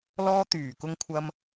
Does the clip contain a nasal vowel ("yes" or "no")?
no